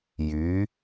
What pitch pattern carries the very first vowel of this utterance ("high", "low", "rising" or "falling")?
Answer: rising